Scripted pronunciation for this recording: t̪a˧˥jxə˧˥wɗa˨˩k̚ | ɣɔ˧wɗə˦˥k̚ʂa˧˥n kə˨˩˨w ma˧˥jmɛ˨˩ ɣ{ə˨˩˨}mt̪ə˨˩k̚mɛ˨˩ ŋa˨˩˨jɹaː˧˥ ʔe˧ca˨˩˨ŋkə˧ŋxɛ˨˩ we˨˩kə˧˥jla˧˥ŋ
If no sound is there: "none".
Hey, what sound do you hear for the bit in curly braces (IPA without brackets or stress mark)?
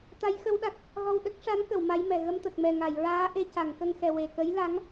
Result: ə˧